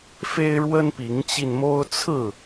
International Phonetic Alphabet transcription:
f e˦ ɪ̯ ɻ w ə˦ n p i˨˦ ŋ t͡ɕ i˧ n m o˦ ʊ̯ t͡sʰ ɹ̩˥˨

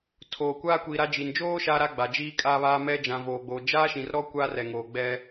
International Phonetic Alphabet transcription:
tʰ oː˨ kʷ aː˦ kʷ iː˨ ɾ a˦ d͡ʒ i˨ n d͡ʒ oː˦ ʃ aː˦ ɾ a˦ ɡ͡b a˨ d͡ʒ iː˦ kʼ aː˦ β aː˦ m ɛ˦ d͡ʒ ã˨ v oː˨ ɡ͡b oː˨ d͡ʒ aː˦ ʃ ĩ˨ r ɾ ɔ˦ kʷ aː˦ r ɛ˨ ŋ oː˨ ɡ͡b ɛ˦

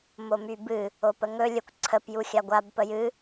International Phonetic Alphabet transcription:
m o m y b ɨ | o p ə ŋ ɵ lʲ ə kʷ ǀʰ ə p j u xʲ a ɡʷ a b p ə j ɨ

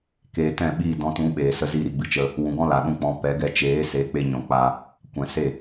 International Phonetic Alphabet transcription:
k eː˨ t ɛ̃˦˨ ɓ iː˦˨ d ɔ̃˧ t ũ˨˦ ɓ eː˨ s ə˦ z iː˧ ɾ i˨ ɡ͡b ɨ˨ t͡ʃ ə˧ | w ũ˨ ɡ ɔ̃˦ l a˨ ɗ ũ˦ k͡p ɔ̃˧ p ɛ˨˦ ɡ ɛ˧ t͡ʃ eː˨˦ s e˨˦ k͡p e˧ ɲ ɔ̃˨ k͡p a˧ | kʷ ɛ̃˨ s e˦˨

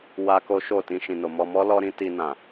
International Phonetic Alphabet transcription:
w a˦ k o˦ ʃ o˦˨ t ĩ˧ ʃ ĩ˨ n o˨ m ɔ˧ m ɔ˦ l ɔ˦ ɾ ĩ˦ t i˧ n ã˨

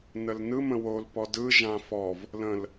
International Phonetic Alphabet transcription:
n ə l n ɯ m ə̃ w o l p ɔ d ɯ ʒ ã f ɔ v | l ə̃ l

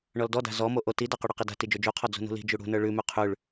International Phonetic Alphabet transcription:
ɳ ɔ l d ɔ d a̤ z ɔ m o ʔ o t i d a q ʉ ɽ ɔ q i d a̤ t i d͡ʒ o d͡ʒ u qʰ ɔ d͡z ṳ n ṳ l i̤ d͡ʒ u ɽ ṳ n ə˞ ɭ ʉ m ʉ qʰ ʉ ɭ

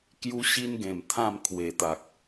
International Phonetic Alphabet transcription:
k j u˦ ɕ i˦ n ɡ ẽ˨˩ m t̪ʰ ã˥˧ m kʰ w e˨˩ t̪ a˨ k̚

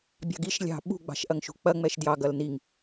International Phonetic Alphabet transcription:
bʲ ɑ̤ ɡ i ʃ lʲ ɑ̤ ɓ ṳ ɡ͡b ɑ̤ ʃ ʔ ɐ ŋ ʃ ṳ k͡p ɐ ŋ͡m ɛ ʃ d j ɑ ɡ ɐ l n i ŋ

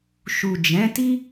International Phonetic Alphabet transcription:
ʃ u˨ d͡ʒ ɛ̃˨˦ t i˦

